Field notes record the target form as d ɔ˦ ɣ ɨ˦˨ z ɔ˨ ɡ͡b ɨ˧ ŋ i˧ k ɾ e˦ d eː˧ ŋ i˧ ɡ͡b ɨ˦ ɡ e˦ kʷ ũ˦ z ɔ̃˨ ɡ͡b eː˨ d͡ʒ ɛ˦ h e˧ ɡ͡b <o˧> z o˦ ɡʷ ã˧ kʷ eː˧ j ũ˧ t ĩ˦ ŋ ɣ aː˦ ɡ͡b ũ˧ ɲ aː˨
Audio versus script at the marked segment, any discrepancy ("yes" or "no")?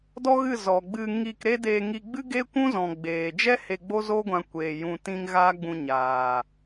yes